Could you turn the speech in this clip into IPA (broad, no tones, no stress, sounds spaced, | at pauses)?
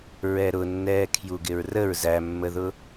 ɹ ɛ ɾ ʊ nː ɛː kʰ j u ɡ ɪ ɹ r ə ɹ z æ mː ə ð ʊ